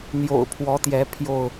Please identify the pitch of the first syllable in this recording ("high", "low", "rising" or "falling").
low